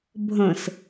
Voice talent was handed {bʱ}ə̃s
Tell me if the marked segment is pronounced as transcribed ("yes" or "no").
yes